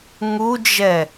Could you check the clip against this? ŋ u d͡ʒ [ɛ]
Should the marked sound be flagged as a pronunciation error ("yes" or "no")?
no